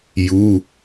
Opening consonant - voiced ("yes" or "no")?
yes